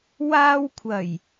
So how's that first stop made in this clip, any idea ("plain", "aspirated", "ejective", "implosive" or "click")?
aspirated